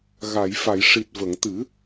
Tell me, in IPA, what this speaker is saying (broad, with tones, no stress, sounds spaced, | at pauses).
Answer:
ɣ a˨˩˨ j f a˨˩˨ j ʂ i˨˩ t̚ v ə˨˩˨ ŋ t̪ ɨ˨˩˦